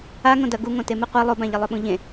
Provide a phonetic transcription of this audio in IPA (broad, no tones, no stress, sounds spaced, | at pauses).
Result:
a ŋ õ d ɐ ɡ u ŋ õ t e m ɨ qʷ a lˠ o b ã ʎ ɐ lˠ ɵ ɓ ũ ʎ ẽ